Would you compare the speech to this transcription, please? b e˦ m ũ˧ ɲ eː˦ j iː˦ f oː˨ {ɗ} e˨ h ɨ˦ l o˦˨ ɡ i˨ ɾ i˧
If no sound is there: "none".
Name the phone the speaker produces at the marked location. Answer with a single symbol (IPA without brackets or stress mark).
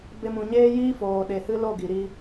ɗ